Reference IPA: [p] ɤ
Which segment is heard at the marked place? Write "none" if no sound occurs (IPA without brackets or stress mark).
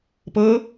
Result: p